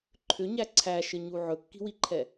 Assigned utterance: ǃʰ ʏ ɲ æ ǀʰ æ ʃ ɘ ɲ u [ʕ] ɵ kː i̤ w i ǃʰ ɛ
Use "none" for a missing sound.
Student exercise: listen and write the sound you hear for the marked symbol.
ʕ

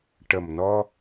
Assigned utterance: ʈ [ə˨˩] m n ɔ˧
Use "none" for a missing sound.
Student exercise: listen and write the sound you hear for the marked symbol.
ə˨˩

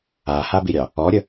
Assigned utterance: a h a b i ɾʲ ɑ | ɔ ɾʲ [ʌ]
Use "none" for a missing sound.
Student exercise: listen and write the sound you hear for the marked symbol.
ə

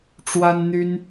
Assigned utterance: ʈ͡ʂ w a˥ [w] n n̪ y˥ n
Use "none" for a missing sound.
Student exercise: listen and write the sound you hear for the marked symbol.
none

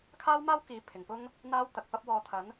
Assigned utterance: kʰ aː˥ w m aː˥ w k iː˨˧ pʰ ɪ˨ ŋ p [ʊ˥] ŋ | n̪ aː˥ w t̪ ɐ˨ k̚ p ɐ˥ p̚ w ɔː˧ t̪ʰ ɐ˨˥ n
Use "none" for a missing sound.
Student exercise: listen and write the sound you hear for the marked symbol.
ʊ˥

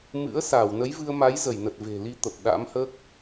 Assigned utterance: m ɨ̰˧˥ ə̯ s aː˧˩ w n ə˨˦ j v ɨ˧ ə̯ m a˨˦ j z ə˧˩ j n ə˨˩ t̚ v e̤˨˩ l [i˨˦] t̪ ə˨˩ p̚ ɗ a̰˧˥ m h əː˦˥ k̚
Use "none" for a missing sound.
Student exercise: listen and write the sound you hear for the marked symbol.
i˧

